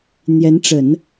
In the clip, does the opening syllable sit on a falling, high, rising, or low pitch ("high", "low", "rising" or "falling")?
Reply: rising